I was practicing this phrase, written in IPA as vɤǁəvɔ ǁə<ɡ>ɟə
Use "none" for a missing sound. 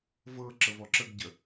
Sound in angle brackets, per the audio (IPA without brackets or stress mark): ɡ